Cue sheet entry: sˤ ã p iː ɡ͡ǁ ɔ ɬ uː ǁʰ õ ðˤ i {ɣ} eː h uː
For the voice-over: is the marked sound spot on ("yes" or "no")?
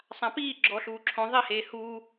no